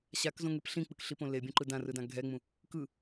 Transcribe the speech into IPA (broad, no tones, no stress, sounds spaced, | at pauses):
ɕ a k z õ ŋ e p ɬ ĩ k͡p ɯ k ɬ i p õ l e bʲ õ ǃ ɯ d ã r ɯ d ã ɡʱ ɛ ŋ͡m ũ | k ɯ